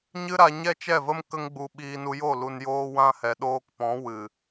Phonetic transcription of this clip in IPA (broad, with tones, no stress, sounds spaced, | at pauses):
ɲ ɨ˦ ɾ a˧ ɲ ɛ˦ t͡ʃ ɛ˦˨ v ə˦ m k ə˦ ŋ ɡ͡b u˧ ɓ iː˧ n u˧ j o˦˨ l u˧ n j oː˦ w ã˦ h ɛ˨ ɗ oː˧ k p ɔ̃˨˦ w ɨ˨